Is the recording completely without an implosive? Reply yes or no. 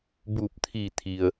yes